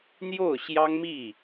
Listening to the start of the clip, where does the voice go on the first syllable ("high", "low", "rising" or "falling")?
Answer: falling